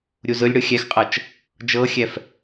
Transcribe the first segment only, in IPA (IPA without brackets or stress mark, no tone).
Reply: ɾʲ